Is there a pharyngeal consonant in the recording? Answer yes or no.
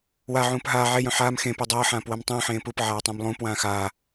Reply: yes